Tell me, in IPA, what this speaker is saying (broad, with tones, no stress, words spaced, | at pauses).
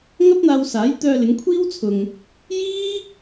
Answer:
ŋɐ˥p̚n̪aː˧w saː˨˥jt̪œː˧lɪ˨˧ŋ kʷʰiː˥wt͡sʰʊ˨ŋ | jiː˥